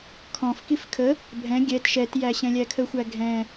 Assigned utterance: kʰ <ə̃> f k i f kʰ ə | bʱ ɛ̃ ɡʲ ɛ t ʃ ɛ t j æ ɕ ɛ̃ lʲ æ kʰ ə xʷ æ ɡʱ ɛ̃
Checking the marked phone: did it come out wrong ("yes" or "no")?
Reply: yes